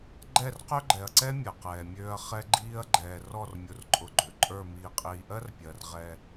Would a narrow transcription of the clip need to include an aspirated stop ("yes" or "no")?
no